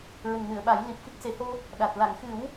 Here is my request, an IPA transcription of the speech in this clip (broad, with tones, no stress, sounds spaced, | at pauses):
ɹ ə˨˩ ŋ n ɨ˨˩˨ ə̯ ɓ a˨˩˦ j l i˨˩ p̚ f i˦˥ k̚ s e˨˩˦ h o˧ | ɗ a˨˩ t̚ l a˨˩˨ ŋ x ɨ˨˩˦ w